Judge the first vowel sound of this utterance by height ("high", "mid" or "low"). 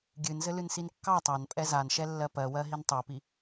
high